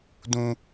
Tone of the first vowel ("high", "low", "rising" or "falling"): high